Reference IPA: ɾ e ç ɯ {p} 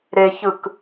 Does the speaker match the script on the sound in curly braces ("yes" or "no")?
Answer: no